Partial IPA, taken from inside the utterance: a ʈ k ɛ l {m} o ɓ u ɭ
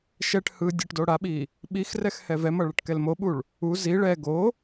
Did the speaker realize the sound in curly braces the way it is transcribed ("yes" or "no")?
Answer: yes